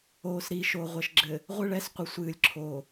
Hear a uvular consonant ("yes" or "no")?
yes